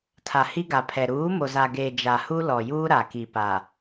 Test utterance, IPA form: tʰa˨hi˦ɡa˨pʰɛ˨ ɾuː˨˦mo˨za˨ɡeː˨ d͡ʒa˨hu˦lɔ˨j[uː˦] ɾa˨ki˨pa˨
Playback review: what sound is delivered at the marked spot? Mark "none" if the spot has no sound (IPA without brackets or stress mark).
uː˦